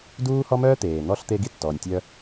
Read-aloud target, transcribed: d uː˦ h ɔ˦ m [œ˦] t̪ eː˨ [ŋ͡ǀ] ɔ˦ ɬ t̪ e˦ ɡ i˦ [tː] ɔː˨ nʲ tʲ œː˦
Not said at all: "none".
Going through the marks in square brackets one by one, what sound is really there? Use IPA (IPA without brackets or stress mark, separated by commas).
œː˦, n̪, tː